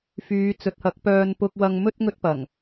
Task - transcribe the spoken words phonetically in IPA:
f yː˨˧ t͡s ɵ˨˥ t̚ h ɐ˨˥ k̚ p œː˨ n p ʊ˧ k̚ w ɐ˧ ŋ m ɵ˥ t̚ ŋ ɵ˥ t̚ p ɐ˨˩ ŋ

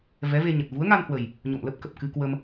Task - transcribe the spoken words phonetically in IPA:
v ɛ˨˦ v e˧ ɲ ə˨˩ t̚ v u˨˦ ə̯ ŋ a˧ n h w ə˨˩ j | ɲ o̰˧˨ m l ə˦˥ p̚ k ə˨˩ p̚ k ɨ˧ k w ə˧ m

